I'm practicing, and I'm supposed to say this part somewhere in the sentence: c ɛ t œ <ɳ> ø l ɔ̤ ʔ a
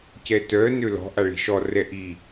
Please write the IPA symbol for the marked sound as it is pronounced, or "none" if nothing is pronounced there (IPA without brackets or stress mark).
n